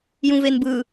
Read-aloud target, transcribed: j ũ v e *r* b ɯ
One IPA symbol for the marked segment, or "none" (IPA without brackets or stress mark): n